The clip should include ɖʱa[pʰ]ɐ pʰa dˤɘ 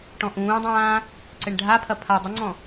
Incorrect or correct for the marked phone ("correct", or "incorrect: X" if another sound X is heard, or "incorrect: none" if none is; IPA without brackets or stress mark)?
correct